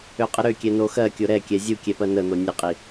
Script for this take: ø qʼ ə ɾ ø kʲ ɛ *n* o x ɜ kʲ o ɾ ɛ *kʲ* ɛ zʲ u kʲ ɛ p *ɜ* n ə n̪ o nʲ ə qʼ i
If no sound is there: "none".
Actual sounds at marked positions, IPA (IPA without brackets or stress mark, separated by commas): n, kʲ, ɜ